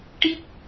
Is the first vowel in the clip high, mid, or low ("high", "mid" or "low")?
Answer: high